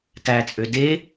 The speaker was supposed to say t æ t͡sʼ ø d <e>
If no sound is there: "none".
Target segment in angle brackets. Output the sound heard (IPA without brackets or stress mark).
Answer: e